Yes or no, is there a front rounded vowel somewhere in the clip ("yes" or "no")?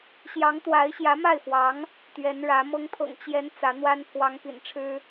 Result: no